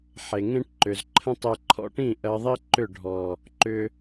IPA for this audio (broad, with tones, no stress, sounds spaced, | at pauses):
ħ e˨ ŋ ẽ˦ ʈ ǃ ʏ˨ z ǃʰ ə̃˦ tˤ e˧ ǃʰ ɔ̰˦ ʈ ĩ˦˨ ʔ ɜ˧ ðˤ i˦ ǃ ʏ˦˨ ɖʱ ɔ˨ | ǃ ʏ˧